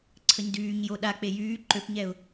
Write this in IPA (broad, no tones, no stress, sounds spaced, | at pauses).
ǀʰ ə ɲ d yː ɲ j o ɗ a k͡p e j yː ǃ ø p ɲ ɛ ʊ̯